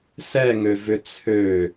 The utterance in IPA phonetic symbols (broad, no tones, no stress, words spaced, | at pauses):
sɛŋøvʏ t͡sʰø